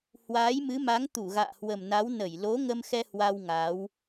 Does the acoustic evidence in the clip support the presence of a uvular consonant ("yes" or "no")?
no